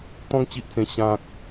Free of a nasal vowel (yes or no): no